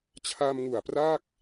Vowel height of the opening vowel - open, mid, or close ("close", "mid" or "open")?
open